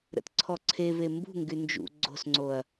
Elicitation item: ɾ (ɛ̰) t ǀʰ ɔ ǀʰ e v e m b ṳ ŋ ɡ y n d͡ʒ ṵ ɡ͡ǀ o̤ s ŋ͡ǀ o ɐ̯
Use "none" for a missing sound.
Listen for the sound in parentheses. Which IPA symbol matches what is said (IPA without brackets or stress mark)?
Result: ə̰